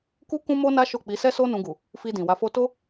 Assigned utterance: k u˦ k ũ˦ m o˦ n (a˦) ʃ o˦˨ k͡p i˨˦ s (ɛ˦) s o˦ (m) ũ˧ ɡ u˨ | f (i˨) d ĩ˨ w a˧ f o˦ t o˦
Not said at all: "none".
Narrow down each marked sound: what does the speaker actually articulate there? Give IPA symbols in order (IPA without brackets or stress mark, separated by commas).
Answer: a˦, ɛ˦, n, i˧